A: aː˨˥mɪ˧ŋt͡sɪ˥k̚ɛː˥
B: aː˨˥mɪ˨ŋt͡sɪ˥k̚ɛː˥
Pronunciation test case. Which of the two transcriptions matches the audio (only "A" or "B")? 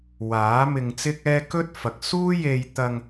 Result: A